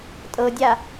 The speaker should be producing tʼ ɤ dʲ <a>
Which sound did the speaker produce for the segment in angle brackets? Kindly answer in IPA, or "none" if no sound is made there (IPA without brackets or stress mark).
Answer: a